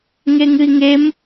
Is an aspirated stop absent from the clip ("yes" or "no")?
yes